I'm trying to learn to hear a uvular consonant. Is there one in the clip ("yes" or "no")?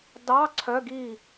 no